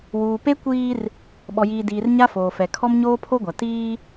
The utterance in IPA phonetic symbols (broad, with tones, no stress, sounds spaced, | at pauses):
w uː˨ p e˦ kʷ iː˦ r | ɓ ɔ˨ j iː˨ d iː˨ r ɲ a˦ f oː˨ f ɛ˨ kʰ ɔ˦ m ɲ oː˦ pʰ o˦ ɡʷ a˨ t iː˦